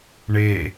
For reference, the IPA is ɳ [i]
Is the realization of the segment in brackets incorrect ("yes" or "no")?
yes